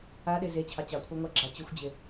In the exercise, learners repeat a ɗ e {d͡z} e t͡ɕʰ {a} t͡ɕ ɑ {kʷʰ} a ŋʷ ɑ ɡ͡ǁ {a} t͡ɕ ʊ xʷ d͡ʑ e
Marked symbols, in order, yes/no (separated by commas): no, no, yes, no